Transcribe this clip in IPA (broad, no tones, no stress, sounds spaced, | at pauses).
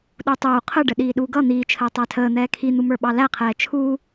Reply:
ɗ u tˤ uː qʰ ə ɖ ə ɗ iː ɗ u ɡ ʌ n̪ iː t͡ʃʰ əː tˤ æ tʰ əː n̪ ɛː kʰ i n̪ u m ə˞ ɓ ɑ l æ qʰ ɛː t͡ʃʰ uː